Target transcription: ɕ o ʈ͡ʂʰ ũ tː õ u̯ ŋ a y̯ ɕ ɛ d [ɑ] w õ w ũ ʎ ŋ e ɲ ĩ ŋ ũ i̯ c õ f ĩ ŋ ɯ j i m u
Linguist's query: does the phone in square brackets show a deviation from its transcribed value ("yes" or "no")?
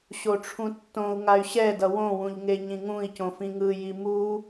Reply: yes